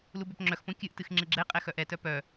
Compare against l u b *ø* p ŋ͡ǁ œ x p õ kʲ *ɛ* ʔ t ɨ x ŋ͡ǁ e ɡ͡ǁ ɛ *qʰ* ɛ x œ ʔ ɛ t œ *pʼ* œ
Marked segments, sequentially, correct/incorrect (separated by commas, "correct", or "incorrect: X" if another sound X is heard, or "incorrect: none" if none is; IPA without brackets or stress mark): correct, incorrect: ɨ, incorrect: qʼ, incorrect: p